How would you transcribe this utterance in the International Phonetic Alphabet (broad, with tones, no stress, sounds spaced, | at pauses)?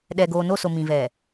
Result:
ɗ ɛ˨ ɡ oː˨ n o˦˨ s o˨ m ĩ˨ v ɛ˨